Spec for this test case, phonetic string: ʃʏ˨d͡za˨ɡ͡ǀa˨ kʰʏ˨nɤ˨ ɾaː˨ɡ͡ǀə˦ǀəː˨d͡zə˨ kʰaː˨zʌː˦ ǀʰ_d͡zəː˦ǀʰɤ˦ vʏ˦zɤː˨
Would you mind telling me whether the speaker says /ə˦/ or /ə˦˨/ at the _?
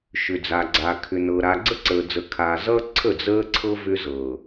ə˦˨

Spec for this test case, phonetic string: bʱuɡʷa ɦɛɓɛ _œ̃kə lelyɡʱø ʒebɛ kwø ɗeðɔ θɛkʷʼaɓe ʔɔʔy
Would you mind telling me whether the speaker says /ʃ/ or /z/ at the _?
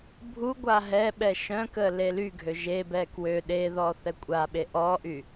ʃ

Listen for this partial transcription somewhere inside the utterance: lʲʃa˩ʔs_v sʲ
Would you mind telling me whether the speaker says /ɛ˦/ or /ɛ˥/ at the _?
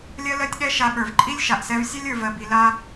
ɛ˦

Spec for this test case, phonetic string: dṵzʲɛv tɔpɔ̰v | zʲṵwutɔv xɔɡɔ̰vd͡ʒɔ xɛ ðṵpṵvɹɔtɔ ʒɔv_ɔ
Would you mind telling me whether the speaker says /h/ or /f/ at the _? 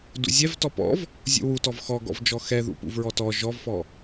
f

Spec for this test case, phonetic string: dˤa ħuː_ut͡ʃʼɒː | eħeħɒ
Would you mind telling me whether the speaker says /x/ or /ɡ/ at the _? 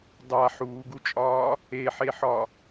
ɡ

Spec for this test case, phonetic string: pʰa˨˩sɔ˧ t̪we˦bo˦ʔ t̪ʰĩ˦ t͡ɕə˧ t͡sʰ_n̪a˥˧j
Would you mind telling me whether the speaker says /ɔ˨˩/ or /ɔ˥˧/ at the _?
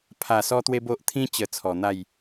ɔ˨˩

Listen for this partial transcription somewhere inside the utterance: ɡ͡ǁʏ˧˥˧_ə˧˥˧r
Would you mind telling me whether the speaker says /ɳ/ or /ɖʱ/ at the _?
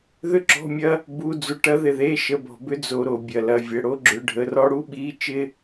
ɖʱ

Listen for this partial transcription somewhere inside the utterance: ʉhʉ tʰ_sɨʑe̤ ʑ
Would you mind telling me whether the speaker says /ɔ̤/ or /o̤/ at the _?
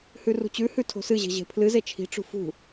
o̤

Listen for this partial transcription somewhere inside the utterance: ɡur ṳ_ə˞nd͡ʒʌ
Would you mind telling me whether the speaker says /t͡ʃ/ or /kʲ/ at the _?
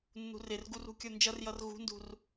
kʲ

